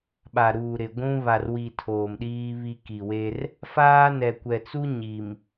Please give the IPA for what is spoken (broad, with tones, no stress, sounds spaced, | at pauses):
ɓ a˨ ɾ uː˨ ɾ ɪ˨ ɡʷ ũ˦ β a˨ r w i˨ tʰ oː˨ m ɗ iː˦ β i˦ k i˨ w e˦ r | f aː˦ n ɛ˨ kʷ ɛ˨ t͡s u˦ ɲ i˨ m